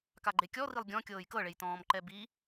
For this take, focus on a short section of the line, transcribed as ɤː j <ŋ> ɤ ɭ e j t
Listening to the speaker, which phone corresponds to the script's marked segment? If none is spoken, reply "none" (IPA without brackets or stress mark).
k